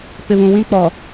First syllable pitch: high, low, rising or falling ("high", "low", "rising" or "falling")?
low